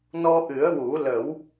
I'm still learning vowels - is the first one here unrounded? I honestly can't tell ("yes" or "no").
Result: no